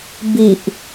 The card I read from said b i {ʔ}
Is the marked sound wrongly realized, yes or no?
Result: no